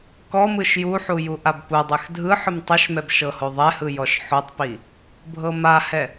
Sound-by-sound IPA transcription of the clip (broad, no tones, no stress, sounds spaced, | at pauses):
k ɔ m ɯ ʃ j u ħ u j u ʔ a b p u dˤ ɛ x dʱ ɯ ħ ɯ m tˤ ɯ ʃ m ɛ b ʃ ɤ h o ðˤ ɛ h ɯ j ɔ ʃ ħ o tˤ p i | bʱ ɤ m a h ɛ